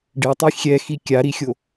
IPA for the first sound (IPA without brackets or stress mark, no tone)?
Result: ɖ